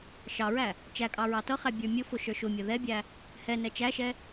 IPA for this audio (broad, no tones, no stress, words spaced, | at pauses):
ʃɑɹæ | t͡ʃækʼɑ ɹɑtʌχæ bʲə˞mʲʊfʊ ʃə˞ʃʊmʲʌ ðɛbʲæ | hɛnɛ t͡ʃæʃɛ